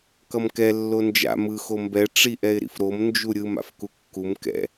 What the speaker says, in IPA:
k ʌ m k ɛ lː o n d͡ʒ a̰ m ɯ x o m b ɛ ʈ͡ʂ i ʔ ɛ ɪ̯ ɾ ḭ f ɾ o m n d͡ʒ u ɾʲ ɯ m a̰ f k u kː u m k ɛ̰

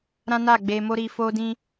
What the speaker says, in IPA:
ɾ ã˦ n a˦˨ ɡ͡b e˧ m o˦ ɾ i˧ f o˦ d ĩ˦

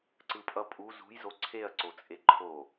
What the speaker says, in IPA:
ǀ ɯ pʼ ʌ pʼ u z ṳ j z o ǀʰ e ɐ̯ ǀ o t͡sʼ e ǃʰ o

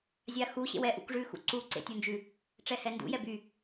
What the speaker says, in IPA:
zʲ a x u ɕ ḛ w ɛ ʔ ṵ k ʐ ʉ x ṵ ǀ u ǀ ḛ tʲ u n d͡ʒ ʉ | ʈ͡ʂ ɛ h ɛ n d ṵ j ɛ b y

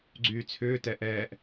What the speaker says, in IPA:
ɡ͡ǀ yː t͡sʰ ʏː t ɛ ʔ ɛː ʔ

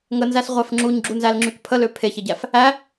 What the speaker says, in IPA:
ŋ ə n z æ s ʁʷ æ f ŋ͡ǁ u ɲ ɡ͡ǁ u n z æ l ŋ͡ǁ y k pʰ ə l ø pʰ e ç e ɟ æ f | æ

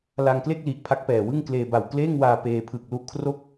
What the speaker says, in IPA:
l a˧ ŋ k l e˥˩ k̚ l i˨˩ ʔ pʰ a˦˥ k̚ p ɛː˨˩ w ɯ˥˩ ŋ k l eː˧ b a˨˩ w k l eː˥˩ ŋ w aː˧ p eː˧ pʰ ɯ˨˩ k̚ l u˦˥ ʔ kʰ r o˥˩ k̚

